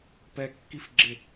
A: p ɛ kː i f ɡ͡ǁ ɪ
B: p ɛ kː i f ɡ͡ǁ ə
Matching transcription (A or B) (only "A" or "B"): A